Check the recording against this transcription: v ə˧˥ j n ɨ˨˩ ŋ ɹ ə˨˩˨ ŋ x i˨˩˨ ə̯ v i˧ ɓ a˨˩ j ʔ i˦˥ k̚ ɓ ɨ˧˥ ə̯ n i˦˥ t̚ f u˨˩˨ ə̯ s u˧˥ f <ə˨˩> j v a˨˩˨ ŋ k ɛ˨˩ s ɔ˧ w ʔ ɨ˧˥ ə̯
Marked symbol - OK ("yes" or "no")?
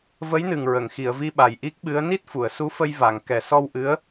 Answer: no